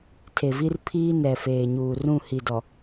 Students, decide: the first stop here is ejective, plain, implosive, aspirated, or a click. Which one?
aspirated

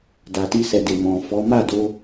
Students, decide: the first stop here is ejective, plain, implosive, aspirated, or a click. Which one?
plain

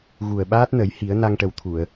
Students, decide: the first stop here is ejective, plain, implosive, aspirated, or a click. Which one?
implosive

